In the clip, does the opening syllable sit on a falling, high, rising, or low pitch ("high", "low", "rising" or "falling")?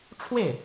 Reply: falling